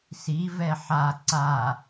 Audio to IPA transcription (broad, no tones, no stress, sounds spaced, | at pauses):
s i v ɛ ħ a ǀ a